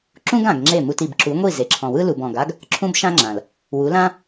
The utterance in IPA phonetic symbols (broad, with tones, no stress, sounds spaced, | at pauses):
ǁ ũ˦ ɡ ã˨ ɡ ŋ͡ǁ e˦˨ m u˧ t i˨ b ǁ u˨˦ ŋʷ i˦˨ z e˨ ǁʰ ɔ̃˨ w ɯ˦ l u˨ b ɔ̃˨ ɡ a˦ ɡ | ǁʰ ũ˦ b ʃ ã˦ ŋ͡ǁ ã˨ l | w u˨˦ l ã˦